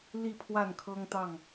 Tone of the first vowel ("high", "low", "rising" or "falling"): falling